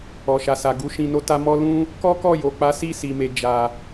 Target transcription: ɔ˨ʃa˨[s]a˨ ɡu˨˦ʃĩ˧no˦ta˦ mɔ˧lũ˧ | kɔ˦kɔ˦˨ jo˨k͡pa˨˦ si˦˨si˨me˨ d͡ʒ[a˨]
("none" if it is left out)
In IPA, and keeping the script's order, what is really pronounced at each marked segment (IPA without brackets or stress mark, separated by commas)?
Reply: s, a˨